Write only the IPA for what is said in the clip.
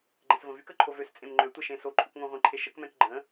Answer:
ɡ͡ǃɛ̃svə̃vyk əǃʰovøs t͡sʼẽmŋ͡ǃø tʷəʃẽ soǃʼokŋõʁʷẽ ǃʰeʃək mɛ̃kɡ͡ǃə̃

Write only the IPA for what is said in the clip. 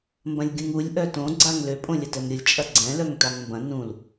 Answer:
mbɐ̃lʲɡʲũŋulʲ ʔœtõ ɡ͡ǀaŋlø pʼõlʲɐtɛmɾʲʊlʲ t͡ʃʼɐɡ͡ǀɛ̃ lœŋtaŋmbɐ̃ nũl

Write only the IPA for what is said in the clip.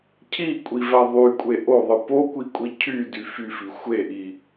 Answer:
cʰikʷʼivæ ðˤykʷʼe ʔoðˤɯ pokʷikʷʼi cʰydy fyfi xʷeʔi

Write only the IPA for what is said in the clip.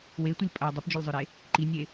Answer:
wetʷɨlʲ pʼɐ dˤɨpd͡ʒɵlʲzˤɵɾe | ǃinʲe

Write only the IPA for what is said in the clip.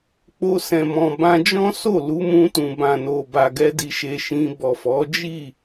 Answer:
k͡po˧sɛ̃˨mɔ̃˨ bã˧d͡ʒɔ̃˦ so˦˨lu˨˦mũ˧tũ˨ bã˨no˨ba˨ɡɛ˧ di˧ʃe˧ʃĩ˧ bɔ˨fɔ˨˦ d͡ʒi˦˨

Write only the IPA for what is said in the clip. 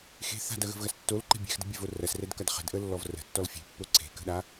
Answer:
xe̤ θa̤dɐɣə̤vɣɐs tːolǃe̤ bʲɛ̤xdə̤bʲɛvo rɐsrɛdkɐd χə̤dʔəlːɔv rə̤tːɔl fʲe̤pːo ǀʰe̤kə̤ɗa

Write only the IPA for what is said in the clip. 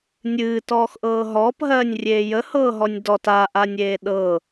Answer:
nʲɨːtɔːxʔɤː ɦɔːpɦɜːnʲrʲeː jəhɤːɦɔnʲ dɔt aʔanʲeː ɗɤ

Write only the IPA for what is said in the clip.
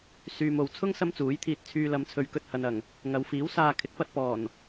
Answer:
syː˨mo˨wt͡sʰʊ˥ŋ sɐ˥mt͡suː˨˥jt̪ʰiː˧t̚ t͡sʰyː˧lɐ˨˧mt͡sʰɵ˨˧ɥ kɵ˧t̚hɐ˨nɐ˨˩ŋ | ŋɐ˨˧wfiː˨˥wsaː˧ kʰɪ˨˥k̚pɐ˧t̚pɔː˨˩n

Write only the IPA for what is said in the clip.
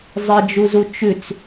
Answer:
zˤed͡ʒuzu t͡ʃʉt͡s

